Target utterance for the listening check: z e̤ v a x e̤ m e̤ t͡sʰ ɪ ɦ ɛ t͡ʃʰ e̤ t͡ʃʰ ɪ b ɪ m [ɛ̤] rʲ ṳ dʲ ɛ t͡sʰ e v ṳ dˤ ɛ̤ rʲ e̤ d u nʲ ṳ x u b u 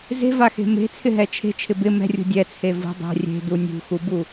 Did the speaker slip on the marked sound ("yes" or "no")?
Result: no